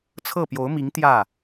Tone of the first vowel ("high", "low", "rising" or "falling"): falling